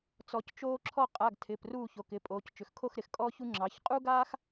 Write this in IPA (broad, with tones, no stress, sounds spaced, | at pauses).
t͡s ɔ˩˧ c t͡ʃ oː˦ ǁʰ ɔ˥˨ qʼ a˩˧˩ ɡ tʰ ɪː˩˧˩ p r uː˥˨ ç o˩˧˩ k ɪ˩˧˩ pʼ oː˩˧ c t͡ʃ ʏ˩ x kʰ o˥˨ x ɾ ɪ˩˧ x kʼ ɔː˦ ç u˦ ŋ͡ǁ ɑ˩˧ ç qʼ u˦ ɡ aː˦ x